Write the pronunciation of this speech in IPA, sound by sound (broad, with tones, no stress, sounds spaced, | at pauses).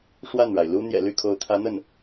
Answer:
ʂ w a˥˩ n ɻ a˩ ɪ̯ l u˥ n̪ j ɛ̰˨˩ l y˥˩ kʰ o˧˥ ʊ̯ t̪ʰ ä˧˥ n̪ ə˥˩ n